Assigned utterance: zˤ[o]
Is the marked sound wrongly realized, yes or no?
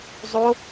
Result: no